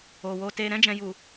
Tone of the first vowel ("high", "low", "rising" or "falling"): low